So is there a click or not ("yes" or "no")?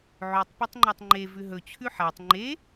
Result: yes